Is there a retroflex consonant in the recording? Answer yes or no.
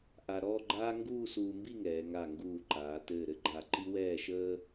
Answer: no